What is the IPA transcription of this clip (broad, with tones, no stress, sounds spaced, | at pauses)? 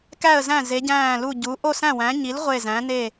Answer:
k æ˥˧ ə̯ z æ̃˥˧ z e˧˥ ɟ æ̃ː˥˧ l u˥˧ ɟ u˧˥ ʔ o˥˧ s æ̃˥˧ w æ̃˧˥ ɲ i˧˥ l ʁʷ e˥˧ z æ̃˧˥ n e˥˧